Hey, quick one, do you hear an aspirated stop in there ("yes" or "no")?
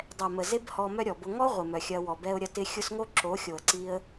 no